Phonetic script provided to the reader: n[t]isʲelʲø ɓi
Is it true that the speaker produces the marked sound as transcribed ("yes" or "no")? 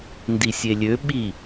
no